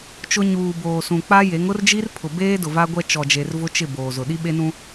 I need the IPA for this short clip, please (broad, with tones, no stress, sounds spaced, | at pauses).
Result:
t͡ʃ ʊ˦ ɲ uː˨ b oː˨ s ũ˨ k͡p a˦ j e˨˦ ŋ ʊ˦ r d͡ʒ i˦ r pʰ ʊ˨ b eː˦ d ʊ˨ v a˦ ɡʷ ɛ˦ t͡ʃ ɔ˨ d͡ʒ e˨ r v ʊ˦ t͡ʃ ɪ˦˨ b oː˨ z ʊ˨ ɗ i˦ ɓ e˦ n ũ˦